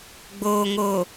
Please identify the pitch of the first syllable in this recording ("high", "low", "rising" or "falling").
low